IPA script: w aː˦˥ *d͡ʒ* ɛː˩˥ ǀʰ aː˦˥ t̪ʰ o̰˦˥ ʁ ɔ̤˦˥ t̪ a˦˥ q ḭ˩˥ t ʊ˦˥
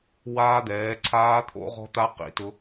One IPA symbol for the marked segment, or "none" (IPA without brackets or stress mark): d̪